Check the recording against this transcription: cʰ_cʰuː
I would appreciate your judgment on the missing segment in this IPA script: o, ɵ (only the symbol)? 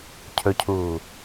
ɵ